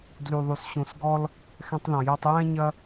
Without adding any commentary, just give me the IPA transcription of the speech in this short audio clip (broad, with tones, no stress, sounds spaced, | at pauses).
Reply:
d l y˩ ðˤ y˩ s ɕ ũ˩ s ɡ ɔ˥ l | x ɛ̃˧ tˤ ð ɔ̃˩ j ɛ˧ tˤ j ɛ̃˥ ɲ ɐ˥